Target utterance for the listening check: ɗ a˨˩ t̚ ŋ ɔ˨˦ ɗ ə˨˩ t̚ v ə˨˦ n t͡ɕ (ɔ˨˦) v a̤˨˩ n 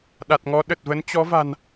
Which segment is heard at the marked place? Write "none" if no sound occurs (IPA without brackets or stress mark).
ɔ˨˦